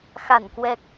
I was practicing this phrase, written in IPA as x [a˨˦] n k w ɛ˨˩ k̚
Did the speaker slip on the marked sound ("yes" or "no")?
yes